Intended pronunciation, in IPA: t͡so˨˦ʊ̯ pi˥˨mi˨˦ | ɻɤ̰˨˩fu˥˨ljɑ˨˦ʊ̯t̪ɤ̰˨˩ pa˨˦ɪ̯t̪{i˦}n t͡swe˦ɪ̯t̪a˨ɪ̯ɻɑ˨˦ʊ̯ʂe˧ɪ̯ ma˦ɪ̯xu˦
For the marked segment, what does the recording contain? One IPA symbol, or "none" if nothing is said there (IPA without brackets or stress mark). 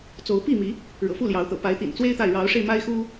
ḭ˨˩